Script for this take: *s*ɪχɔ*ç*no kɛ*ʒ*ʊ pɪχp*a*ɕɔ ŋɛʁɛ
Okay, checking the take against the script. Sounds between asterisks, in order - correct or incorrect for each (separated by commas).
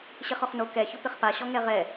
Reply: incorrect, incorrect, incorrect, correct